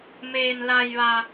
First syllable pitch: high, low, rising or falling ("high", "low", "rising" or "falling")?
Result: low